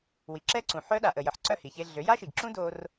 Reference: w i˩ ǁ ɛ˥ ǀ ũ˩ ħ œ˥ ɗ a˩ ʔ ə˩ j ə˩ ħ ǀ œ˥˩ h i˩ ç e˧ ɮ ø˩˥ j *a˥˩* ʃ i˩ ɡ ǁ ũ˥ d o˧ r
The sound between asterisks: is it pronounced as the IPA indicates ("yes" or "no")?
no